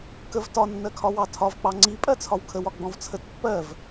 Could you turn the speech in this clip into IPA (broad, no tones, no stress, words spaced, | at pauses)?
kəv tɒ nːɜkʰɒwɑtʰɒv k͡pɑŋ͡ǀi pʼɜt͡sʰɒwkʰəw ɒɡ͡bɔ̃vt͡sʰət pːɜv